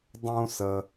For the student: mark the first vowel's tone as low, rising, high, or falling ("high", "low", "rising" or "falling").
high